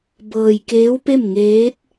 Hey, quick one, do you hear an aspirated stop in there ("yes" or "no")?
no